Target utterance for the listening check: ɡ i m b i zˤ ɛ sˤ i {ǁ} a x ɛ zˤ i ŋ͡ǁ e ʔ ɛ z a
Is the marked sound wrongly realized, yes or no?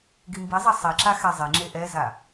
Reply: no